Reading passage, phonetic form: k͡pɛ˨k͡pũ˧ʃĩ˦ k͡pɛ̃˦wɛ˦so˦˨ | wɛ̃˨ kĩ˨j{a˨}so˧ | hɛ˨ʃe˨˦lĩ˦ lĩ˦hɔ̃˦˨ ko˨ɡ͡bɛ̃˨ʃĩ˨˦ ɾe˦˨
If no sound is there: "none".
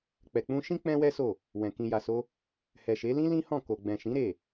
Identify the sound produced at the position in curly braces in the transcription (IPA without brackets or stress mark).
a˨